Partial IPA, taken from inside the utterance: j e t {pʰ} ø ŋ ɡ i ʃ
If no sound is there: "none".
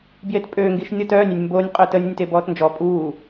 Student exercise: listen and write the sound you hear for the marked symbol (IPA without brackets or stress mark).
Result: pʼ